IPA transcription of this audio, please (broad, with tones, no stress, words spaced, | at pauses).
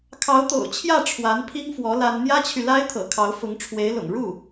kʰɑ˧˥ʊ̯t̪o̰˨˩ʊ̯t͡ɕʰjä˥˩ ʈ͡ʂʰwa˧˥n pʰi˥ŋfwɔ˧˥ la˥n n̪jä˥t͡ɕʰy˨la˥ɪ̯t̪ʰɤ̰˨˩ kʰɑ˧˥ʊ̯fʊ˧˥ŋʈ͡ʂʰwe˧˥ɪ̯lʊ̰˨˩ŋ ɻu˥˩